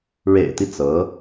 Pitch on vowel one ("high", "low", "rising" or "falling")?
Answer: low